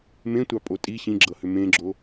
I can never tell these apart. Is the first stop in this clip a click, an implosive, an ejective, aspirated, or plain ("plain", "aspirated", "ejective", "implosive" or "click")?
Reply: plain